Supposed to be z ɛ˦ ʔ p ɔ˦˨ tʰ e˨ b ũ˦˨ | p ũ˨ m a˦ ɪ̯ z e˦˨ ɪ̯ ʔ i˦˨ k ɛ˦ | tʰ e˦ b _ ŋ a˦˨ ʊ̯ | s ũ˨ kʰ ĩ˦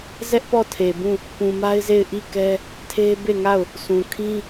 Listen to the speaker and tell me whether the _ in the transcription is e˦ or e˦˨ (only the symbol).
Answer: e˦˨